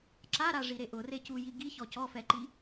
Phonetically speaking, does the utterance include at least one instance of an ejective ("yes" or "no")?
no